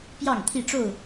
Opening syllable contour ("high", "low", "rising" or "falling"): falling